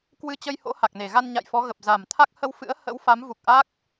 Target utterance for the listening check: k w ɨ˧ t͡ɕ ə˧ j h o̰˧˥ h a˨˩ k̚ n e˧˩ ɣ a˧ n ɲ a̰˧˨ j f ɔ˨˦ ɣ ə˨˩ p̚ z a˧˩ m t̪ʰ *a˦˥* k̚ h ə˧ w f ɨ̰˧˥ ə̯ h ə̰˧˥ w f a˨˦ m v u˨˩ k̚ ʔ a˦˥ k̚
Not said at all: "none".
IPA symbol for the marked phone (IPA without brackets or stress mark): a˦˥